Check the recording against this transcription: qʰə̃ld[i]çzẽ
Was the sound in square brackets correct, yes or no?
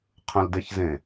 no